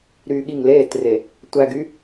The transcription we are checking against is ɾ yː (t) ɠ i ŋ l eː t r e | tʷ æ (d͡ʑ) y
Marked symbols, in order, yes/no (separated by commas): no, no